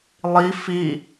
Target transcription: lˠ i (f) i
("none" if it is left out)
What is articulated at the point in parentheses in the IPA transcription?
f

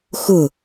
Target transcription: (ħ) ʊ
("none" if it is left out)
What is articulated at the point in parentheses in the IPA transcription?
x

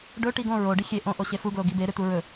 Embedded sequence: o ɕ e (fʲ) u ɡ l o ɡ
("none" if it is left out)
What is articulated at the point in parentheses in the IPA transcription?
f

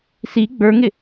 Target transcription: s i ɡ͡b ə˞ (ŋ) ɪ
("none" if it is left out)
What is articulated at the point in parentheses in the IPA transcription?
ŋ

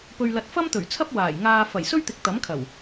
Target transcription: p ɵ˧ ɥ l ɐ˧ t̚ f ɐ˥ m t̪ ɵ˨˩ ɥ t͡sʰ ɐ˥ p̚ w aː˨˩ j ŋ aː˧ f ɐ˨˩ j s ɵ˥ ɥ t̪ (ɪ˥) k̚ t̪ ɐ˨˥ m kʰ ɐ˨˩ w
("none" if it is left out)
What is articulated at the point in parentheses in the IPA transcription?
ɪ˨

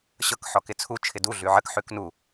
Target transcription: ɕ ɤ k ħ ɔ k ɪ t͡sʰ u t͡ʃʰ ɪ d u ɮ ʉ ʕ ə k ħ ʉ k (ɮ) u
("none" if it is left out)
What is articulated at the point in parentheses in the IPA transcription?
n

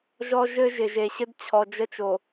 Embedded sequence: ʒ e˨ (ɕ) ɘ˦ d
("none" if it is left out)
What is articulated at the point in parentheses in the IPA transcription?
ɕ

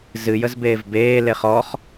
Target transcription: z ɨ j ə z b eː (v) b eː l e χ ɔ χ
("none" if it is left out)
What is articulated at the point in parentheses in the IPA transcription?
v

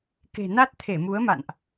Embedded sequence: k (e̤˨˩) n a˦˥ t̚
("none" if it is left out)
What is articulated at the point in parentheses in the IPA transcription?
e̤˨˩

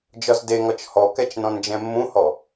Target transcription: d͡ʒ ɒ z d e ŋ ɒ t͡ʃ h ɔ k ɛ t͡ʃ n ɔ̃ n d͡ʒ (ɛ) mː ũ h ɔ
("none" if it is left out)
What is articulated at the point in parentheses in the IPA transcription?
ɛ̃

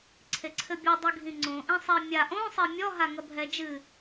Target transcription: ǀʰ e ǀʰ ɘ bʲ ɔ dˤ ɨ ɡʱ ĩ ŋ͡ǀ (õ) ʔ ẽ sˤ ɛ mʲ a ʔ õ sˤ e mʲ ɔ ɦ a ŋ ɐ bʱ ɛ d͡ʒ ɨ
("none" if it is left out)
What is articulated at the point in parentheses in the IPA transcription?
õ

